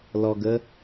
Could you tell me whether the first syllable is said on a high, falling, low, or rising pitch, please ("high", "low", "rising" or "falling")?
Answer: low